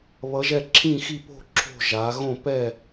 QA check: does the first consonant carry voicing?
yes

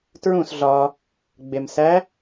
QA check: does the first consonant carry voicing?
no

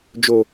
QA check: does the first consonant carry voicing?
yes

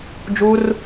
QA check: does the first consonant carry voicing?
yes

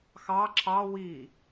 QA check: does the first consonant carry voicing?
no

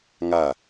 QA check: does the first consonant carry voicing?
yes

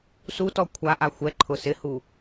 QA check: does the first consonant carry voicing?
no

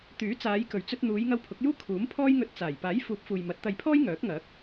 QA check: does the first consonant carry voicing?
no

